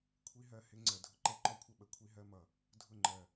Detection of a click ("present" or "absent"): present